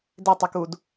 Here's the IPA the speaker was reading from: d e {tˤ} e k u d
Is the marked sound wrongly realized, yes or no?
no